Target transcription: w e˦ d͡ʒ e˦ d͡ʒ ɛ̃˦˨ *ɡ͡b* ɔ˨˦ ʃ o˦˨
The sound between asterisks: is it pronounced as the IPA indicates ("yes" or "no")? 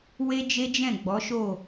yes